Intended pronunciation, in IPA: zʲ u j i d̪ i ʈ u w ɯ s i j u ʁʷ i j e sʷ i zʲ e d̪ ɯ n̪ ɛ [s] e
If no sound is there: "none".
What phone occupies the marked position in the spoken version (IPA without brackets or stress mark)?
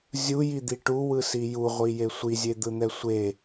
sʷ